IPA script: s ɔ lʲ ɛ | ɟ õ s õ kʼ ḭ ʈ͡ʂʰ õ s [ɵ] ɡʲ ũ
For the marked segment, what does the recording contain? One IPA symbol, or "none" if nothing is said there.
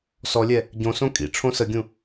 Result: ə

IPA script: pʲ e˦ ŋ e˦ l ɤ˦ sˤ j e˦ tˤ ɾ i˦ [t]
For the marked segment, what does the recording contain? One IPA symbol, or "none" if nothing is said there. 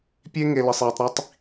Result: tˤ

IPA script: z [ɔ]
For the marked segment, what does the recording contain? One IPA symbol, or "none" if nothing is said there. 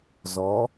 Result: ɔ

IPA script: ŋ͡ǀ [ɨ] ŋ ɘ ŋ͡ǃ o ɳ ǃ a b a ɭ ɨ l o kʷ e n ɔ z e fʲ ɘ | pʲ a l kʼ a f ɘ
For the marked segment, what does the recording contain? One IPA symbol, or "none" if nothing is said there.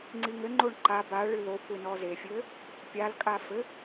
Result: i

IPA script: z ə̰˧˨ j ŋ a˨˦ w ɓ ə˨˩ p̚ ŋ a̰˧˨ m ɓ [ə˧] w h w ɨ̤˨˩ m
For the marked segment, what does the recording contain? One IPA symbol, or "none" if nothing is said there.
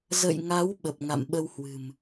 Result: ə˧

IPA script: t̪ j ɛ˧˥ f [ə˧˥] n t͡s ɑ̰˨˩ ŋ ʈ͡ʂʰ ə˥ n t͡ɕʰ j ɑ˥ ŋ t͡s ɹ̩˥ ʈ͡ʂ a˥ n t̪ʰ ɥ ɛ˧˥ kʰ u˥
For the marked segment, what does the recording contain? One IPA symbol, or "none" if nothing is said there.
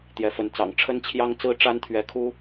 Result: ə˧˥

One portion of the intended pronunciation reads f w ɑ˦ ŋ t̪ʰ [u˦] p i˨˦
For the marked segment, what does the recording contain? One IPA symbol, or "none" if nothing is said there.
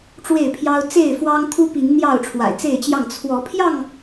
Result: u˦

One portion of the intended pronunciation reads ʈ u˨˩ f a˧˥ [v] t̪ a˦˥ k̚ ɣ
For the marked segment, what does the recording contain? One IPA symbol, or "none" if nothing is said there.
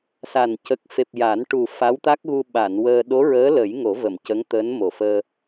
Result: w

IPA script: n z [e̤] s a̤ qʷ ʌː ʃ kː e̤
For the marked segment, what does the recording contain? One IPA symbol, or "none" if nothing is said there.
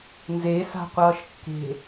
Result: e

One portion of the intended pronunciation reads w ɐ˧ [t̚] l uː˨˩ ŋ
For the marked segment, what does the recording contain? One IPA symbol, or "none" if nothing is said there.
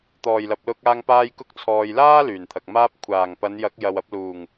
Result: p̚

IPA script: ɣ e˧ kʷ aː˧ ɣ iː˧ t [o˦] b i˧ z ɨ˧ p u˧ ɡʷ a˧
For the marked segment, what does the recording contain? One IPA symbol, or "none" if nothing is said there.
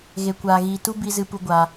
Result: u˦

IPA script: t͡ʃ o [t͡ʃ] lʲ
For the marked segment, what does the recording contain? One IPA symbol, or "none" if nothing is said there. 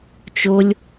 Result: none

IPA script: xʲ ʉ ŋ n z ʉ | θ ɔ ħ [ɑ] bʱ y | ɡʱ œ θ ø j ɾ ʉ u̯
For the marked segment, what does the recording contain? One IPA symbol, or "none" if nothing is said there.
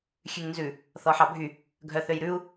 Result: ɑ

